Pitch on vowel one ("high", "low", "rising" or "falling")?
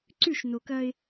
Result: falling